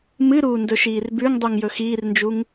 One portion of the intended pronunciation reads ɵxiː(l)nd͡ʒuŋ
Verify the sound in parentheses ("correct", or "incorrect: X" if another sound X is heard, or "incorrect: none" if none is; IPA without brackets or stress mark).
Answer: incorrect: r